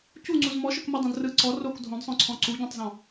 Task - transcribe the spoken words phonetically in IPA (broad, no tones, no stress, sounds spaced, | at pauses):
c u ŋ͡ǀ u z m ɔ ʃ œ k m ɛ dˤ õ d r ɯ ǀ ɔ r o k dʱ õ d sˤ œ̃ ǀʰ ɔ̃ ǀ u ɟ ɔ̃ tˤ z ɔ̃